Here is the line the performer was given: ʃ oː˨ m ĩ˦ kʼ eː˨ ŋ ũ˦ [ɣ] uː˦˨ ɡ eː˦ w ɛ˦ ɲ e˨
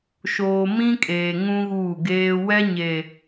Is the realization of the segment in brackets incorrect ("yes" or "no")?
no